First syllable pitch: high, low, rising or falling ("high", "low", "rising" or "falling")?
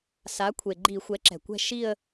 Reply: rising